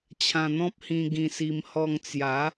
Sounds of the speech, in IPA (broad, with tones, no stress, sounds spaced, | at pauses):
t͡ɕʰ ã˧ n̪ ɔ̃˦ p̚ h ĩ˧ ɡ ĩ˧ s i˧ m h ɔ˧ ŋ t͡s j a˨˦